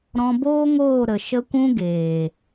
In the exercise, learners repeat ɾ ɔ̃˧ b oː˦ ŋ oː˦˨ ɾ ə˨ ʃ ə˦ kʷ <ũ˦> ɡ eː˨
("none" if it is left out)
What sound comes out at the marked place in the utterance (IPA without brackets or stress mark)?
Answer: ũ˦